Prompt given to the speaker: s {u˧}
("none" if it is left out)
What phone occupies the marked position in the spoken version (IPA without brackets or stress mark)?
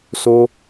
o˧